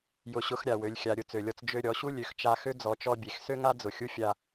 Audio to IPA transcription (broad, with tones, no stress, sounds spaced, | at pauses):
j ʊ˧˥ ɕ ʊ˧˥ x ɾʲ a˩ w ø˩˧ lʲ xʲ a˩˧ ɾʲ ʊ˧ t͡s ø˩ lʲ ɔ˧ t͡s d͡ʒ ø˧ ɾʲ ɔ˩˧ ɕ u˥ lʲ ø˩˧ x t͡ʃ a˧ x ø˥ d͡z ɔ˩˧ t͡ʃ ɔ˧ bʲ e˩ x s ø˥ ŋ a˥ d͡z ʊ˩ xʲ u˥ fʲ a˧